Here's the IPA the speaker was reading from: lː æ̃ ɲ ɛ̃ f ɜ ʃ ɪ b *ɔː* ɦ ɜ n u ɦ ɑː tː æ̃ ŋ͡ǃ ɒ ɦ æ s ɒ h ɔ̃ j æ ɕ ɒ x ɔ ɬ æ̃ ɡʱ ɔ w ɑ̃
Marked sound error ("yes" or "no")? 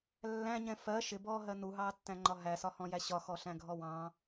no